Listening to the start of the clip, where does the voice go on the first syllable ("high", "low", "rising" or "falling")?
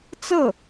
falling